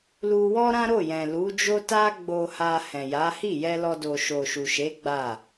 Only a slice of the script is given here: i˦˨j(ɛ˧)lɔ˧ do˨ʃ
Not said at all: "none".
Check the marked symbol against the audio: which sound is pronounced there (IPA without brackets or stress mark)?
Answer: ɛ˧